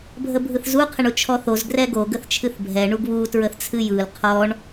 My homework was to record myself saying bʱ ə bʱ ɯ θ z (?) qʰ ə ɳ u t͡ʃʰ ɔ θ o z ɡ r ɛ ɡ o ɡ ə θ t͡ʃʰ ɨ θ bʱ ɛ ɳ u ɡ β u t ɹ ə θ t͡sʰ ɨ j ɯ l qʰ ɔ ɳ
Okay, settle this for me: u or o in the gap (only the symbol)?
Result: u